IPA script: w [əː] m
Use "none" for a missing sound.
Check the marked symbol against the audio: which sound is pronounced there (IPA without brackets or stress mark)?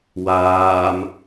aː